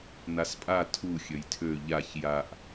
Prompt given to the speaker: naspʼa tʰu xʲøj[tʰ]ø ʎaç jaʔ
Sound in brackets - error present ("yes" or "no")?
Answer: no